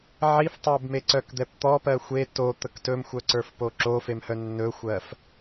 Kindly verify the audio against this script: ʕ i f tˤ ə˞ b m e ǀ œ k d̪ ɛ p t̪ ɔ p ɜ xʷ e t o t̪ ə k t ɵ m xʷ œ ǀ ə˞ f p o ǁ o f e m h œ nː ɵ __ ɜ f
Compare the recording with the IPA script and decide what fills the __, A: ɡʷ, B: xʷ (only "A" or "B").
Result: B